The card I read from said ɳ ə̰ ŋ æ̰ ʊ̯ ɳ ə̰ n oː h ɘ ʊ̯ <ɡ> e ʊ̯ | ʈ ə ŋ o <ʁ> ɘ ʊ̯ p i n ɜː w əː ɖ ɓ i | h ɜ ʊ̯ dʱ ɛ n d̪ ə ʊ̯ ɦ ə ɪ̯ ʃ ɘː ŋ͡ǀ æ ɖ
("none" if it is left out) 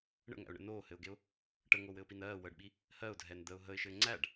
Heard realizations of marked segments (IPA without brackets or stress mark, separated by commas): ɡ, w